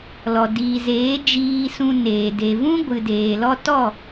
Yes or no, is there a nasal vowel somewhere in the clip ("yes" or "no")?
yes